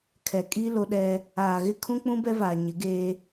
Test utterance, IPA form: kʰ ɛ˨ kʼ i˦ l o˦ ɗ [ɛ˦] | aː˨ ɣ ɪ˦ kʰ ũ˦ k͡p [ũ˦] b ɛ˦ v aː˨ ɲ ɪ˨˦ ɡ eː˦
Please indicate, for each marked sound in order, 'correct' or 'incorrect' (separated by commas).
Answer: correct, correct